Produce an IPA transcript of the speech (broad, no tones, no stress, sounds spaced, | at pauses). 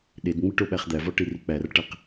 ɗ e d ŋ͡m i ʈ o ɓ æ χ d̪ æ v ɒ ʈ i r i k͡p æ r ʈ æ q